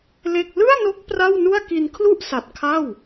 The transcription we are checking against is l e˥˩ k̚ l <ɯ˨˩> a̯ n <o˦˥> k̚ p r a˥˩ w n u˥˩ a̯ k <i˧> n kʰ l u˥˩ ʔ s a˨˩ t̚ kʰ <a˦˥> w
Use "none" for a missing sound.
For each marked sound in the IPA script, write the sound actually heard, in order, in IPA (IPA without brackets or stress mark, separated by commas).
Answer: ɯ˥˩, o˦˥, i˧, a˥˩